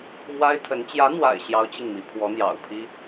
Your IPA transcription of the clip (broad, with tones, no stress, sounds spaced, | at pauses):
m w a˥ ɪ̯ t̪ʰ ə˧˥ n t͡ɕ j ä˧˥ n̪ w a̰˨˩ ɪ̯ ɕ j ɑ˥ ʊ̯ t͡ɕ i˥˩ ŋ m i˧˥ pʰ w ɔ˧˥ n̪ j ɑ̰˨˩ ʊ̯ pʰ i˥